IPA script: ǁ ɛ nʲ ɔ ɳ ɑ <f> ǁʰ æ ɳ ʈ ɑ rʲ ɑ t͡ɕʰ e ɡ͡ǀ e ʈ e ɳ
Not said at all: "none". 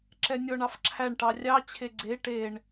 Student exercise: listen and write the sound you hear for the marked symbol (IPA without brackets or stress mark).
f